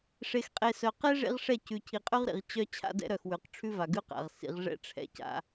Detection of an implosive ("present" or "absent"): absent